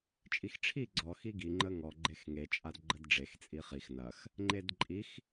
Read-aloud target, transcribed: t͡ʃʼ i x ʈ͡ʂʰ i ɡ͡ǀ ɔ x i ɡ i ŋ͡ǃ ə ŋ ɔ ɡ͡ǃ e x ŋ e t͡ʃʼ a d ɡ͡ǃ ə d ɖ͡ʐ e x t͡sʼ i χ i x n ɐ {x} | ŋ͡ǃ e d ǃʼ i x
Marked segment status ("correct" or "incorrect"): correct